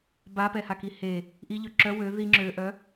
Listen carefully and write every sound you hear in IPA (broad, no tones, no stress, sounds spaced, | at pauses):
b a p ɛ h a k i h e | ʔ i ʎ ø ǁ œ w ø ð i ŋ͡ǁ ø ʔ œ